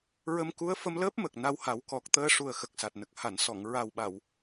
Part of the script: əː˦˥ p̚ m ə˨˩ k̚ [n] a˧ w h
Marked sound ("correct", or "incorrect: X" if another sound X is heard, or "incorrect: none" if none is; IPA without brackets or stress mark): correct